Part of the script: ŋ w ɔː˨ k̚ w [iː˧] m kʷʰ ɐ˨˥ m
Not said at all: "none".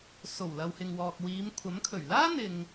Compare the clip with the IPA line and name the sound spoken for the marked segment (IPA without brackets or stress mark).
iː˨˧